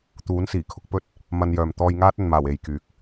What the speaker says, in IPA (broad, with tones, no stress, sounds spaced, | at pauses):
t̪ uː˨˥ n s iː˨˩ kʰ ʊ˨˥ k̚ p ɵ˥ t̚ | m ɐ˧ n j œː˨ m t̪ ɔː˧ j ŋ aː˥ t̚ ɵ˨ n m aː˨˩ w e˨ j k yː˨˥ k̚